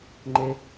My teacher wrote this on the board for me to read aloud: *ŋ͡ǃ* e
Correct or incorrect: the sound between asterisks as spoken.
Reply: correct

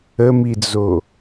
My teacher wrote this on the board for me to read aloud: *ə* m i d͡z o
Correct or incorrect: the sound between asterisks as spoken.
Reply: correct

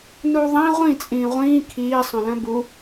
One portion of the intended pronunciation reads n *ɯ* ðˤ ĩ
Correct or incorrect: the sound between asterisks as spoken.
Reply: incorrect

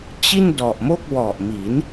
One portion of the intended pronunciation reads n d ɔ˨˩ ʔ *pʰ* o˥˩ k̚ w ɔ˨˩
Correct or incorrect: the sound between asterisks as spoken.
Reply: incorrect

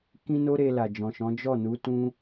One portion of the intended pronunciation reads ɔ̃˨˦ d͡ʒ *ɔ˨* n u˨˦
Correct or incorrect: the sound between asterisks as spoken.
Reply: incorrect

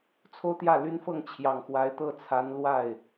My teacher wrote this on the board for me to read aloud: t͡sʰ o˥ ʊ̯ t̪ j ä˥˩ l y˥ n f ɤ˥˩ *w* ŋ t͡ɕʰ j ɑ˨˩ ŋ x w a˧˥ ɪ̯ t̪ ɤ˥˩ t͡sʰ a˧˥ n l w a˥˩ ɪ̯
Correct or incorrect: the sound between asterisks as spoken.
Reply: incorrect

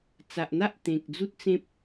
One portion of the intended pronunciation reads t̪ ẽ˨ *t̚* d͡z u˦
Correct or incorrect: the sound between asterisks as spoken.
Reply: incorrect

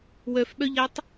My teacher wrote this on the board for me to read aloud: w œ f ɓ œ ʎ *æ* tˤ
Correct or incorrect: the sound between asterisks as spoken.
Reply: incorrect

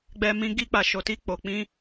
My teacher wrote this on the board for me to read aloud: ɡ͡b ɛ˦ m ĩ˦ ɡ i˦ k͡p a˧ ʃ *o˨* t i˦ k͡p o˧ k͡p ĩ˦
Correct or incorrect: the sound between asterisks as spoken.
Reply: incorrect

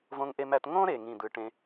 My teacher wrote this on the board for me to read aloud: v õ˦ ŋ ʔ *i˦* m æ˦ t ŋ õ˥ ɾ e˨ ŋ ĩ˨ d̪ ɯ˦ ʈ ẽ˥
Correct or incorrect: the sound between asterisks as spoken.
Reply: incorrect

